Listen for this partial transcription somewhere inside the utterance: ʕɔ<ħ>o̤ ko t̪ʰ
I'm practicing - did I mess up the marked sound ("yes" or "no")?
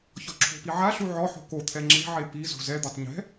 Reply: no